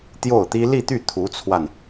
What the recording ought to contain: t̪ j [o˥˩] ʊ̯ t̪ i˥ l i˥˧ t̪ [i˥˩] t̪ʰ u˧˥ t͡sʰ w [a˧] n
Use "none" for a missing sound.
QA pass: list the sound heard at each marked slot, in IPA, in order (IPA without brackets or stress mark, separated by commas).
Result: o˥˩, y˥˩, a˧